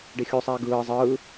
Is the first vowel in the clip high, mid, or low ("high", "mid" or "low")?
high